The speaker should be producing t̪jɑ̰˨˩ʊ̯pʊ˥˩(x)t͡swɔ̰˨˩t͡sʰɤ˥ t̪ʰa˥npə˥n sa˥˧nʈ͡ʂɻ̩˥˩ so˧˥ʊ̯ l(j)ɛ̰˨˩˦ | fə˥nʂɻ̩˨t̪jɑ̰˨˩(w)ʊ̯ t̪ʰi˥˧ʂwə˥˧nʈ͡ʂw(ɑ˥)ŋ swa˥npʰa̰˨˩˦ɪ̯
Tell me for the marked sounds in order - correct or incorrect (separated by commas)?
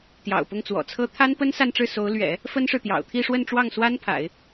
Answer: incorrect, incorrect, incorrect, incorrect